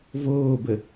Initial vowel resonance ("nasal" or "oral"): oral